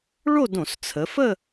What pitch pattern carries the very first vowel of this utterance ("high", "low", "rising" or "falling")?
falling